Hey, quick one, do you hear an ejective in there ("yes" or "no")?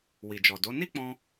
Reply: no